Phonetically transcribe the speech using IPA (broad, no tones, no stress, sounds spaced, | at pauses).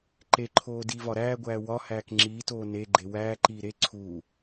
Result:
ǃ e ǃʰ oː d iː v ɒ ɾ æː ɡʷ æː w ɒ h æː k ŋ͡ǁ iː t oː n e ɡ͡ǃ e w æː ǃ iː ɾ e ǀʰ uː